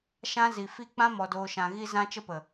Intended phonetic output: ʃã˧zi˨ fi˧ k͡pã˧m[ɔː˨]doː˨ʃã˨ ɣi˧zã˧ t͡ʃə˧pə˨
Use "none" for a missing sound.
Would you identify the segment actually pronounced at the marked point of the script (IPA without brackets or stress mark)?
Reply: ɔ˨